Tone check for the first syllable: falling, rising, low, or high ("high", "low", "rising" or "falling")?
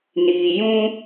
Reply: low